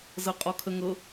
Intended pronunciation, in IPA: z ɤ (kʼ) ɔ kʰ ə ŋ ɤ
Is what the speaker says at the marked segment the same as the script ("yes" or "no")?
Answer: no